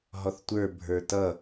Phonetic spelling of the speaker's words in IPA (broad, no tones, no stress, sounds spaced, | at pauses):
ɦ ɔ θ tʷ ə˞ bʱ ə˞ t ʌ